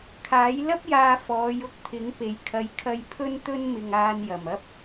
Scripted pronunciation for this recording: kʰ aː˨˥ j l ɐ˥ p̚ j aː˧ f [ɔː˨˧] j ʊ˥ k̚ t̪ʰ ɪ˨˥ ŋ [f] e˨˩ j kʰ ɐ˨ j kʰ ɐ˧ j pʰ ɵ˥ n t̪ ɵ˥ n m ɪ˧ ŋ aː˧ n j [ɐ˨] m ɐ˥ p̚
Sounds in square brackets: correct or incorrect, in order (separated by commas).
correct, incorrect, incorrect